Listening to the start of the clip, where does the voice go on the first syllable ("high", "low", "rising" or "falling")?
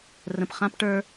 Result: low